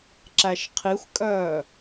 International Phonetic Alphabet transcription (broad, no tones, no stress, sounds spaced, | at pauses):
ǁ æ ʃ qʰ i xʷ kʼ œː